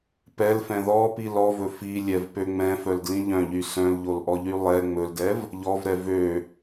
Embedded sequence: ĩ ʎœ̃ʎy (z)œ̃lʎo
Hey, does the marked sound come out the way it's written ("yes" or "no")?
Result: no